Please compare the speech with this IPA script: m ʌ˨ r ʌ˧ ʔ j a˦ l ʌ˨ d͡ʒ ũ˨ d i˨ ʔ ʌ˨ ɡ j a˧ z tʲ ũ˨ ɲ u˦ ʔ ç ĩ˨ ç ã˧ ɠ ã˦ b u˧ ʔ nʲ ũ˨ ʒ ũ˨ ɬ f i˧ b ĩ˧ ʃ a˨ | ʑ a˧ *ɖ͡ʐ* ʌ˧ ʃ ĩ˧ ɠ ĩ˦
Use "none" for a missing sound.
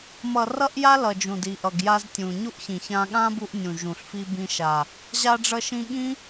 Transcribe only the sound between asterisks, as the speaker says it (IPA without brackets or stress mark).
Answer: ɖ͡ʐ